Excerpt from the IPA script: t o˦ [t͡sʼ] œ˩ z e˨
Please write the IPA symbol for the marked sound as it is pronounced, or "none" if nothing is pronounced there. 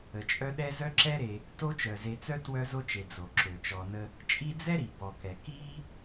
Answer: t͡ʃ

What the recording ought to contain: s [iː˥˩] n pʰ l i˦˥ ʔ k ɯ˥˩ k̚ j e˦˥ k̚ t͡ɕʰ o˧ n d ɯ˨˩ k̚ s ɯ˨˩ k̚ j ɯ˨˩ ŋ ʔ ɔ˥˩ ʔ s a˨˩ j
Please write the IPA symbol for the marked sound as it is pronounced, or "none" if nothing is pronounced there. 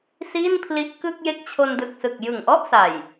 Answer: iː˥˩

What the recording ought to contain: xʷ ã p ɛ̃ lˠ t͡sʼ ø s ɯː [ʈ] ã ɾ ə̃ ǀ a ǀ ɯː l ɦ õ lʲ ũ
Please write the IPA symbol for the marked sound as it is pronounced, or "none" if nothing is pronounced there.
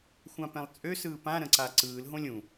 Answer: p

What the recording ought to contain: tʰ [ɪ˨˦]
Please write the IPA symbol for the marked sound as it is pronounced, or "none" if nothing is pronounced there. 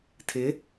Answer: ɪ˨˦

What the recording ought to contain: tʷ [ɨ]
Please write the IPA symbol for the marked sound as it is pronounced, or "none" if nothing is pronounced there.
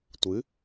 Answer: ɨ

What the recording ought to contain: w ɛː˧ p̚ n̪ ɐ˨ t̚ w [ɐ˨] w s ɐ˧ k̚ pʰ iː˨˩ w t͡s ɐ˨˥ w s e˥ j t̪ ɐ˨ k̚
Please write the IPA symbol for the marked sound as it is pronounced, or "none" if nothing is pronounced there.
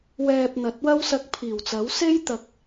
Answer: ɐ˥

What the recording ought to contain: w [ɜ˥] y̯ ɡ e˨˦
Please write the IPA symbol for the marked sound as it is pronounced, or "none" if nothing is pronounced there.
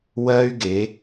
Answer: ɜ˥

